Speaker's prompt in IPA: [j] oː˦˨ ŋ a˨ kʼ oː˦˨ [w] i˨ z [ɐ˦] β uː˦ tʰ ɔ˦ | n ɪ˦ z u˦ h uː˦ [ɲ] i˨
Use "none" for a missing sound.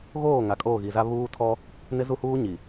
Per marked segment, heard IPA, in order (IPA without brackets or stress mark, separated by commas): ɣ, ɣ, a˦, ɲ